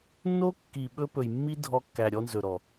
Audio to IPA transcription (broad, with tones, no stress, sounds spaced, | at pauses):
nː o˦ kː i˨ ɓ ɵ˧ p ɵ˨ j mː i˦ dʱ ɔ˧ kː æ˨ ɾʲ ɔ˧ n z ɵ˨ ɾ ɔ˨